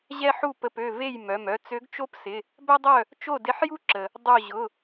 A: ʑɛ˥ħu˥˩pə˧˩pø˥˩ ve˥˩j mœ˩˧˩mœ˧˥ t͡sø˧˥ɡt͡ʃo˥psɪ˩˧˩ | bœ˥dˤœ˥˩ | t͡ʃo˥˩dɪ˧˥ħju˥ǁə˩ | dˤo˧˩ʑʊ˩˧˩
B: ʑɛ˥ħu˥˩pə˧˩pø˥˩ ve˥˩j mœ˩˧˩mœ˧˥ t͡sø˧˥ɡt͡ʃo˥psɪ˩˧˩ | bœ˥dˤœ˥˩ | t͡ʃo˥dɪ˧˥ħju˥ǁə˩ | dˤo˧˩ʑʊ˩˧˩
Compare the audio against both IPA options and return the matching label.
A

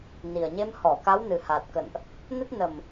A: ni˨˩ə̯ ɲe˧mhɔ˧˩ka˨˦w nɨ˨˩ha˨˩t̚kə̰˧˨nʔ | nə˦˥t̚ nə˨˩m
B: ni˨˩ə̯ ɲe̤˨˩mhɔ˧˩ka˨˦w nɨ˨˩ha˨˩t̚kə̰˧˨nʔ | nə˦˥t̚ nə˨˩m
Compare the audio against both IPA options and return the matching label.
A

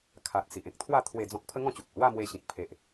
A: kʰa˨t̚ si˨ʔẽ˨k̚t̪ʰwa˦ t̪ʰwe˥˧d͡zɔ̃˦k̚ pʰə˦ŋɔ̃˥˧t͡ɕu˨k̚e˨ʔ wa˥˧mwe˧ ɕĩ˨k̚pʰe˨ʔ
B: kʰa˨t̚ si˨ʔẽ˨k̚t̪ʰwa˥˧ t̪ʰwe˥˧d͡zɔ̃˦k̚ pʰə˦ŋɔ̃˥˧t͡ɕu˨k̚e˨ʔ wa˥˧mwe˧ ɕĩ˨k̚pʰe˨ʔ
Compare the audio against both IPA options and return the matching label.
B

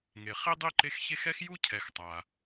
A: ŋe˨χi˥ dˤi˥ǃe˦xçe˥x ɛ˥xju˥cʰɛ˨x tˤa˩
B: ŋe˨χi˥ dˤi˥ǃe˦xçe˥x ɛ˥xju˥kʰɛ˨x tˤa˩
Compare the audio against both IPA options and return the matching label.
A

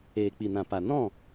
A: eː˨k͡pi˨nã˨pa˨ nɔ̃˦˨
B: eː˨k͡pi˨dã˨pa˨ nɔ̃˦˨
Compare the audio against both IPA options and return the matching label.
A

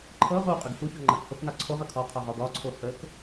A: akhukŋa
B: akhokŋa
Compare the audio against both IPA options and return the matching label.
B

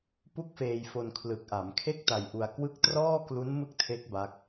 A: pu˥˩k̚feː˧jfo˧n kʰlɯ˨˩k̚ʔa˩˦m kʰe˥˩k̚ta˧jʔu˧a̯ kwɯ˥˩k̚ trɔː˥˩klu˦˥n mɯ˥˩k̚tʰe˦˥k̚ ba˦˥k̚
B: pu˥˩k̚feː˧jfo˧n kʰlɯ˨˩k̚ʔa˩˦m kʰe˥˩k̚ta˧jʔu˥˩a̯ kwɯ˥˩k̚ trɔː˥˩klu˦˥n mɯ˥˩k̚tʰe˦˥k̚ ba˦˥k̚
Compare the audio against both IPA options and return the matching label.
A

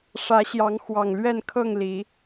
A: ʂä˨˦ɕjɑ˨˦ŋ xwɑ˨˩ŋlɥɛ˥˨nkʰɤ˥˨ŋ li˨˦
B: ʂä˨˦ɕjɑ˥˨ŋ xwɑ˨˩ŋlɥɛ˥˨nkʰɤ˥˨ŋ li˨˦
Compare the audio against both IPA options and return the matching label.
A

